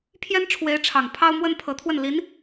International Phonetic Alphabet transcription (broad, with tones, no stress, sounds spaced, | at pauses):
pʰ j ɛ˥ n ʈ͡ʂʰ w e˧˥ ɪ̯ ʈ͡ʂʰ ɑ˨˩ ŋ pʰ ɑ˥ ʊ̯ m w ə˥ n pʰ ɤ˧˥ t̪ʰ w ə˥˩ n l i˧˥ n